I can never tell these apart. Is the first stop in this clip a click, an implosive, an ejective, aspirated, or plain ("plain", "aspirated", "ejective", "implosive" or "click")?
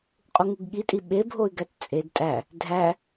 ejective